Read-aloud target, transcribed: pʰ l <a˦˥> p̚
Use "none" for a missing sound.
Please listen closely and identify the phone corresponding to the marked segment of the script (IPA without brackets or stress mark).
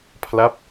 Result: a˦˥